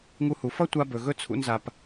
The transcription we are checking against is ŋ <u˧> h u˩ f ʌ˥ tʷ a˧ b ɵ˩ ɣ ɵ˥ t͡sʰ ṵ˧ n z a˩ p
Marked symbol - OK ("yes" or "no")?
yes